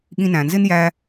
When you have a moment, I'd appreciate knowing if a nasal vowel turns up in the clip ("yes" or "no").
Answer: yes